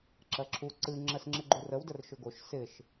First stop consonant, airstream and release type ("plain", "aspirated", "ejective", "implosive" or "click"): click